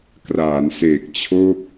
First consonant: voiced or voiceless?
voiceless